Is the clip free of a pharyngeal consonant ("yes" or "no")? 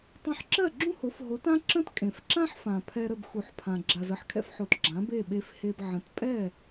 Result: no